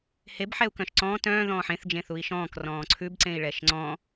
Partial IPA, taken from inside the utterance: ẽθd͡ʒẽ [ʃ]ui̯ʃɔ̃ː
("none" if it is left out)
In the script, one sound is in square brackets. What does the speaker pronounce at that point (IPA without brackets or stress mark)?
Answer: θ